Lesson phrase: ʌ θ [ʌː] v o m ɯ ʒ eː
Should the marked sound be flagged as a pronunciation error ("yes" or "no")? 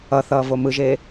no